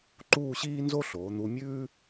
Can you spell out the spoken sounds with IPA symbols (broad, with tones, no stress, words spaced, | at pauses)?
ǃuː˥˧ɕiː˥nzo˥ ɬoː˩˧n̪u˧ mʲʉː˥